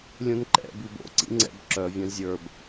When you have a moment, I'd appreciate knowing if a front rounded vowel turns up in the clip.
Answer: yes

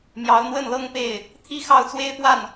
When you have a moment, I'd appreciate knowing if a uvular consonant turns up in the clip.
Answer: no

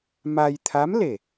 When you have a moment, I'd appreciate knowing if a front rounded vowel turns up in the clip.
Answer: no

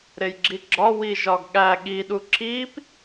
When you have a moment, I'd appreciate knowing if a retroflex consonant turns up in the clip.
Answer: no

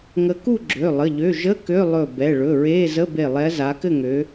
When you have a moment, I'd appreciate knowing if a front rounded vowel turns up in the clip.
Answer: yes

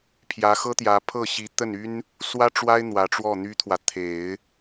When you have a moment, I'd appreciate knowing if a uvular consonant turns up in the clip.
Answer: no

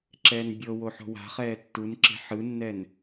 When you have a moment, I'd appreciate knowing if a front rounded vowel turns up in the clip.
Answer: no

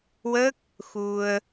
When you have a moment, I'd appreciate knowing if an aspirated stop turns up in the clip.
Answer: no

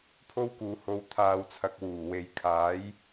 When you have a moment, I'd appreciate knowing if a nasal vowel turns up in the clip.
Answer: no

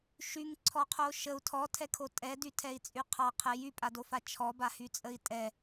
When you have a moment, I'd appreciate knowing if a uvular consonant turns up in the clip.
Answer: yes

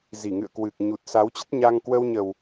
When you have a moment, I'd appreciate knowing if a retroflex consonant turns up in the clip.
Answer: no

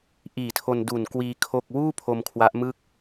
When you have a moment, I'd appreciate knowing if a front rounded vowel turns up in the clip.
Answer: no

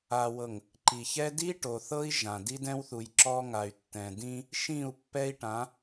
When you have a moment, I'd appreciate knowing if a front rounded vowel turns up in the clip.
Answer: yes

